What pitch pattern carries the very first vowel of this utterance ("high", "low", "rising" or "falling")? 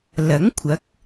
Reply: rising